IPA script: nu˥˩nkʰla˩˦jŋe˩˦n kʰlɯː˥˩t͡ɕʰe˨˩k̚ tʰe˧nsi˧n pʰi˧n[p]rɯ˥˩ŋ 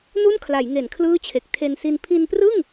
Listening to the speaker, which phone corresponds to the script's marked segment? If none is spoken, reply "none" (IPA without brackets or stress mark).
p